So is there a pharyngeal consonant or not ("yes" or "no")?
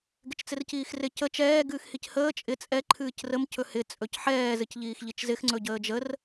yes